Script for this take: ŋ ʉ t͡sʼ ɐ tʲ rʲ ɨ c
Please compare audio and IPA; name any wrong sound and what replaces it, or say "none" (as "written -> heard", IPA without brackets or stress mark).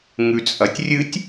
c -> tʲ